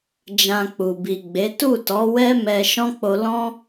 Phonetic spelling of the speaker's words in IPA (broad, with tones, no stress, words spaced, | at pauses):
d͡ʒã˧k͡pu˨ bi˨ɡ͡be˨˦ tu˦˨tɔ˨˦ wɛ˦ mɛ˧ ʃɔ̃˦k͡po˧ lɔ̃˦